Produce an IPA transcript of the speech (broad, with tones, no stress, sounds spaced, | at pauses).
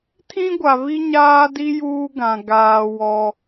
tʰ ĩ˦ ɡʷ a˨ β i˦ ɲ aː˦ d i˦ j uː˦ ɡ ã˨ ɡ aː˨ w ɔ˦